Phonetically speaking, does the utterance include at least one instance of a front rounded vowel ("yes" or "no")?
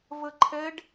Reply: no